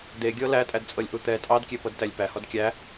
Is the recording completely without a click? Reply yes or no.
yes